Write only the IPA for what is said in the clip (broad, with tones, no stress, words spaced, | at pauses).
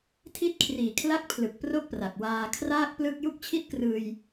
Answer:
tʰi˦˥t̚kʰriː˨˩kʰla˦˥k̚ pʰlɯ˨˩k̚pro˥˩k̚pra˨˩k̚ waː˧ kʰraː˥˩k̚plɯ˥˩k̚ ju˥˩k̚t͡ɕʰi˥˩t̚krɯː˧j